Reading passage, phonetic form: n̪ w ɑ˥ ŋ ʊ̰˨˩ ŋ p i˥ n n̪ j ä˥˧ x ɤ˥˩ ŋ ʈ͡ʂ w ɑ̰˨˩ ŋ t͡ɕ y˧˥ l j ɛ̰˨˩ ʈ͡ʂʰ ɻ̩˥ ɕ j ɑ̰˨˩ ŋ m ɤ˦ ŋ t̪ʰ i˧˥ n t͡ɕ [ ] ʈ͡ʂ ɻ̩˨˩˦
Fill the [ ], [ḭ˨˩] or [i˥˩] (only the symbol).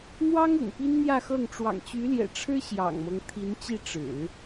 i˥˩